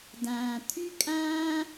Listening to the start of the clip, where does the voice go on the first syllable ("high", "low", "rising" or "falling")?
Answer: low